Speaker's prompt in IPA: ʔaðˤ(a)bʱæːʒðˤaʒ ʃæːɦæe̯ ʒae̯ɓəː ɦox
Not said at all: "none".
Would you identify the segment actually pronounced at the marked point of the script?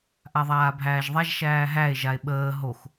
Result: aː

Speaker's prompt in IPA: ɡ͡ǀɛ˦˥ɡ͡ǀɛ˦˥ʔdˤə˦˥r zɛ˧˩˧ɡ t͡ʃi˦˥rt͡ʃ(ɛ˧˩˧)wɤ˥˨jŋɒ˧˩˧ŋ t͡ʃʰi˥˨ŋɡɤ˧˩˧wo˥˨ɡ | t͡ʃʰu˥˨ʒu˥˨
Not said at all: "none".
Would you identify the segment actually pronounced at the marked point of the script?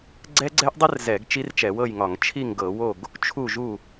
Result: ɛ˧˩˧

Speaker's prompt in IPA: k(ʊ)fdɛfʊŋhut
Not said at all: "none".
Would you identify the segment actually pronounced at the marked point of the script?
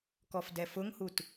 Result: ɔ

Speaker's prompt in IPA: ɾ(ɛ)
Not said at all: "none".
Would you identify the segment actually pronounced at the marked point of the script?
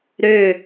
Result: ø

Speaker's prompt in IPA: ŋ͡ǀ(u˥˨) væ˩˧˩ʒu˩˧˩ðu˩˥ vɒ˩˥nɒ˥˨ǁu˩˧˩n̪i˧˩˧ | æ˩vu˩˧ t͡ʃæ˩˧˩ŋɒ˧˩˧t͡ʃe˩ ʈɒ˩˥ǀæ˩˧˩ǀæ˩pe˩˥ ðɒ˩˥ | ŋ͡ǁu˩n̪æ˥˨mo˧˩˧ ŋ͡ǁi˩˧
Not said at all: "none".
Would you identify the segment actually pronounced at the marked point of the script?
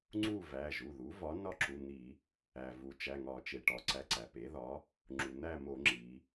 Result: u˥˨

